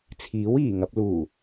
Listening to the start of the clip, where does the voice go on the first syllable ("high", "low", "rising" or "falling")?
rising